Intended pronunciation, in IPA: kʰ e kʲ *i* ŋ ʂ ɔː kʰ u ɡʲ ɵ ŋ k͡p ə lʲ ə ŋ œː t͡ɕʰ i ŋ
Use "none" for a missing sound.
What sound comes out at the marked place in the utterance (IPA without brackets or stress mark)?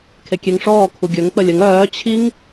e